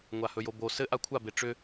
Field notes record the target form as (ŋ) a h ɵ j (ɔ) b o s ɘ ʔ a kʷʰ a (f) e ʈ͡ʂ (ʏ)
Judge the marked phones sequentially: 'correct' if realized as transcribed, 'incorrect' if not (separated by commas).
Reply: incorrect, incorrect, incorrect, correct